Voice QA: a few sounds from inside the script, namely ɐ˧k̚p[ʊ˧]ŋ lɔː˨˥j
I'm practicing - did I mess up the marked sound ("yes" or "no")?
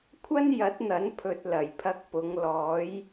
yes